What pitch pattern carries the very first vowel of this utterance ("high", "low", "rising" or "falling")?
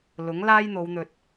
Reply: rising